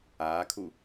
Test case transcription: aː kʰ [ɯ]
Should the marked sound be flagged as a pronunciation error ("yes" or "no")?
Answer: yes